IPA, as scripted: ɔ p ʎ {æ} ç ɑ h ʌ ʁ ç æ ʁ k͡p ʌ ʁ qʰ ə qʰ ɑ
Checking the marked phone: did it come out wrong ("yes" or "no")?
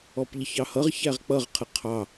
yes